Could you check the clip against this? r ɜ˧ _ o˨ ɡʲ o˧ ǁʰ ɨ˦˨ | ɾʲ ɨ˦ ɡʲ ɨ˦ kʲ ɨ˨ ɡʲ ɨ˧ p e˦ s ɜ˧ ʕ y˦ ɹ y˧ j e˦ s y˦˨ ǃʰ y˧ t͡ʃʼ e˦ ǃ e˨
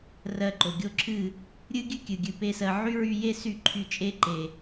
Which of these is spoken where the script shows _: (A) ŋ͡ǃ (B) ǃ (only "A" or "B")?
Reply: B